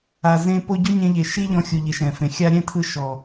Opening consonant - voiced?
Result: yes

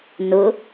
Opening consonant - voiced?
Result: yes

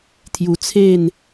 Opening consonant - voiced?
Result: no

